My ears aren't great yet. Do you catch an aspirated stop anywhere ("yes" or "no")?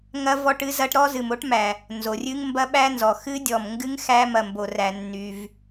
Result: no